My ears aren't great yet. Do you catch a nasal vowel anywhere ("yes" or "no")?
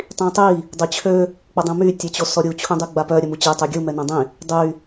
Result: yes